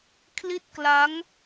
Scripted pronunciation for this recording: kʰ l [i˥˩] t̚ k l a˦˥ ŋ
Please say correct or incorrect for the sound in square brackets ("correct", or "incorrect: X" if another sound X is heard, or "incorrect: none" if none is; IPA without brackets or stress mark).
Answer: correct